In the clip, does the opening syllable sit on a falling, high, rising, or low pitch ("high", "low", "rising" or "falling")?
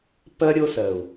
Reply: high